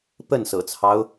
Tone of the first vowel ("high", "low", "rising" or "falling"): falling